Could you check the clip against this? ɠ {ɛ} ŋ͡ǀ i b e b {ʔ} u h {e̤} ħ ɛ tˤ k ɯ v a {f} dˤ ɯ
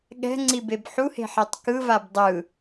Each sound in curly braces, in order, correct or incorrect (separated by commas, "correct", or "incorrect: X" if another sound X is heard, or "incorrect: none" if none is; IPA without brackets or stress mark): incorrect: ɛ̤, incorrect: ħ, correct, incorrect: b